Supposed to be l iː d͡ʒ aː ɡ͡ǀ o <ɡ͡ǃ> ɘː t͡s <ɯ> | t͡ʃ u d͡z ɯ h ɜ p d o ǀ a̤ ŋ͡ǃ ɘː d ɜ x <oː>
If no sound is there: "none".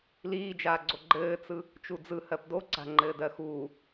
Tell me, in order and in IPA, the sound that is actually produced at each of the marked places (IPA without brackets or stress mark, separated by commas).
ɡ͡ǃ, ɯ, uː